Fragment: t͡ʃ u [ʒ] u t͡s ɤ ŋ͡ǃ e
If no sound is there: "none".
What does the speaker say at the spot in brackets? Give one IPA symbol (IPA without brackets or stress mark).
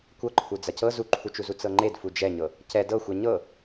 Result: z